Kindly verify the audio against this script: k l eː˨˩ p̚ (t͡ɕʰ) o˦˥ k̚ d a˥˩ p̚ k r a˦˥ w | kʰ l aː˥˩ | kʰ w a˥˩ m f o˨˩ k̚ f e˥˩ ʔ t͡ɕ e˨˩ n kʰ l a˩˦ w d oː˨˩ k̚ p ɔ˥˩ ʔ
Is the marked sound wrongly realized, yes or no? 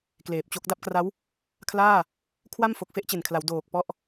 yes